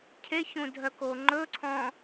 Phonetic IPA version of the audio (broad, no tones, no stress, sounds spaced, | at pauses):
cʰ e ç ũ dʱ œ k o ŋ͡ǃ ɵ ǀʰ ɔ̃